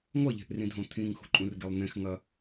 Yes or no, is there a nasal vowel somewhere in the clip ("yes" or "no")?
yes